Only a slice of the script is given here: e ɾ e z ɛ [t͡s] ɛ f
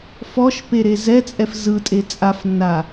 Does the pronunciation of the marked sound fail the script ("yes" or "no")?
yes